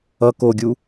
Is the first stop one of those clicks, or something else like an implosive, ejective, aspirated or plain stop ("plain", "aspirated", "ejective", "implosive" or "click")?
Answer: plain